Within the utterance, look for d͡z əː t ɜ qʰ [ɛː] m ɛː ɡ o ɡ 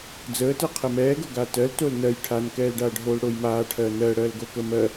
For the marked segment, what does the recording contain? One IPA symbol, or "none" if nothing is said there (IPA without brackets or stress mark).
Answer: ɛ